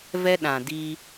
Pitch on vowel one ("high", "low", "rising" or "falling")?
high